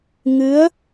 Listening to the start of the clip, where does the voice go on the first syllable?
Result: rising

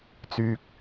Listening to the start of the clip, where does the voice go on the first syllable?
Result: low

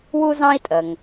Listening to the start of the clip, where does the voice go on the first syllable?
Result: high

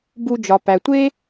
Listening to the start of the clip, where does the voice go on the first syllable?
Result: low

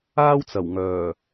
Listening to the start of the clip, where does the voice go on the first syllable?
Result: high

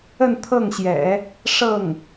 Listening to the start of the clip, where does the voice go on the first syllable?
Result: falling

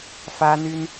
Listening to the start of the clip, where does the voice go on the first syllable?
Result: high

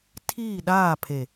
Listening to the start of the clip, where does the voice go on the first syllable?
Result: falling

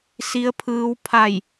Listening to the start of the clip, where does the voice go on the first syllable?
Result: rising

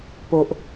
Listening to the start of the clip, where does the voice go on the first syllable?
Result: low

